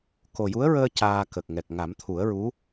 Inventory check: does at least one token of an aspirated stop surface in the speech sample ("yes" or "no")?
yes